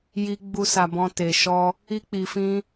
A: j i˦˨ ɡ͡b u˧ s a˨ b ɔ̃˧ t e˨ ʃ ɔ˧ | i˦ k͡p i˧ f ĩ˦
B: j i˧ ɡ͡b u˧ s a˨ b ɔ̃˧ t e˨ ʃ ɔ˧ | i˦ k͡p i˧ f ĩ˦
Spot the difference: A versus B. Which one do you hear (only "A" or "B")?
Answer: B